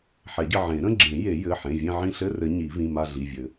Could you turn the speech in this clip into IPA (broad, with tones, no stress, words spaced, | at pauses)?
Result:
ħɛ˨˩˦ɟɘ˦˨ ʕẽ˨˩˦ɾə̃˧˥˧ɡ͡ǁẽ˨˩˦ je˨˩˦jɘ˩˧˩ħẽ˩˧˩ vʲẽ˦˨ʕĩ˦˨ɬɘ˧˥˧rɘ˨˩˦ ɲi˨˩˦vĩ˩˧˩ma˦˨ ɮi˩˧˩vʲɘ˨˩˦